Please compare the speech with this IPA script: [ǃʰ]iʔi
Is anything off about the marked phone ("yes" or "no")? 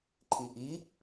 no